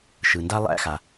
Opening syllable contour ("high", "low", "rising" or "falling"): low